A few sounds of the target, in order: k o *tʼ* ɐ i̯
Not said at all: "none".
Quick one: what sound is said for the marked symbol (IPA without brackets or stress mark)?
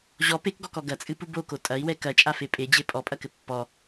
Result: tʼ